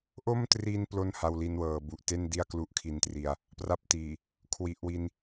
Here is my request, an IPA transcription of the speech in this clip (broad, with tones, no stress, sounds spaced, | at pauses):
ʔ o˥˩ m t r i˧ n p l o˥˩ n h a˧ w l i˧ n w ɤː˩˦ b u˨˩ ʔ t e˥˩ n d i˥˩ a̯ k l u˦˥ ʔ kʰ i˧ n t r i˧ a̯ | p r a˥˩ p̚ t iː˨˩ | kʰ w i˨˩ ʔ w i˧ n